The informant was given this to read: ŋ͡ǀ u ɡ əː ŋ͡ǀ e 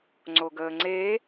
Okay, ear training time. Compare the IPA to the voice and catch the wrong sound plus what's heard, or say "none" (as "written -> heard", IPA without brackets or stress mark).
u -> o